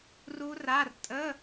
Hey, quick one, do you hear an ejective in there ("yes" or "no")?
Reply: yes